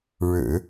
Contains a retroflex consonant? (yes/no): yes